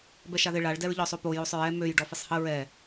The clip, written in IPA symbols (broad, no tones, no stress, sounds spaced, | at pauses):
b ɛ ʃ a ð ɪ ɭ a ɭ d ɛ ɹ ʎ ɔ sˤ o p o j o sˤ ɹ ɛ m ø j ɖ ɔ f ɪ sˤ h ə ɹ ɛ